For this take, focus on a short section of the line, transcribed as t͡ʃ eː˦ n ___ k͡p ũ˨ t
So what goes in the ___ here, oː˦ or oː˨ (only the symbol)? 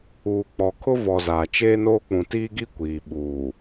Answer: oː˦